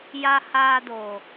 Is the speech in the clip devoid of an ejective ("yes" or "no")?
yes